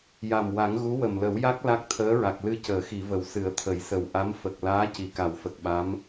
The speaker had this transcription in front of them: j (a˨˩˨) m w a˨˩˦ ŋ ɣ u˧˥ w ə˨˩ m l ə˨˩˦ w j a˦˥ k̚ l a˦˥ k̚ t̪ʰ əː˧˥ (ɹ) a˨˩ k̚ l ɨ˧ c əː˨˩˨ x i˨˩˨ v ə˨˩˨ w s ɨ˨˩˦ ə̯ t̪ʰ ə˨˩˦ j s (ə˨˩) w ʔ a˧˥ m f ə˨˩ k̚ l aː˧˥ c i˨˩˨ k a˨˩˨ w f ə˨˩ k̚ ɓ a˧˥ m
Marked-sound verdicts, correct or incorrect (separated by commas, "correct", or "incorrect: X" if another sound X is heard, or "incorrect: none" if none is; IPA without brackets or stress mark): incorrect: a˨˩, correct, correct